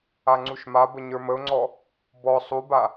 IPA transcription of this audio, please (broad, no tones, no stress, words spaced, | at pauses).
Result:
aŋ͡ǀuʃmabə ɲə˞məʊ̯ŋ͡ǀɔ | bɔ sˤuba